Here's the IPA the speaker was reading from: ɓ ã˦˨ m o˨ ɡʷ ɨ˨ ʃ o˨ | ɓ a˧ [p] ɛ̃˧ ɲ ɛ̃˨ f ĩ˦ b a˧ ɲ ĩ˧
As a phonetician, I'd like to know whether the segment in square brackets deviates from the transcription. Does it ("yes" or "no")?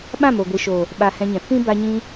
yes